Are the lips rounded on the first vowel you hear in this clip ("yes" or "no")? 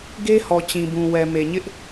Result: no